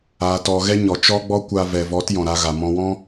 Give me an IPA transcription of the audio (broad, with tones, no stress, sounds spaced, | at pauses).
aː˧ t ɔ˧ ɣ ɛ˦ ɲ ɔ˨ t͡ʃ ɔ˦ ɡ͡b ɔ˦ kʷ aː˧ v ɛ˨ v ɔ˨˦ t j ɔ̃˨ ɾ a˧ ɣ a˨ m ɔ̃˧ w ɔ̃˦